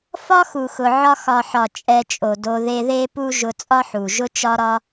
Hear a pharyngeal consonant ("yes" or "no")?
yes